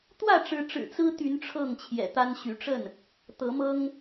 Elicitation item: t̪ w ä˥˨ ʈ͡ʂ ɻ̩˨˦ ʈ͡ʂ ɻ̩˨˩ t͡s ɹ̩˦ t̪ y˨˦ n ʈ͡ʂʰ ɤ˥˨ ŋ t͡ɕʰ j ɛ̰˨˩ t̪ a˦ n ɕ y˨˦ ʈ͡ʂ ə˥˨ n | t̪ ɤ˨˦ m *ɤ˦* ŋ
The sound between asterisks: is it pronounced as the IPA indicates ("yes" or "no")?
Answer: yes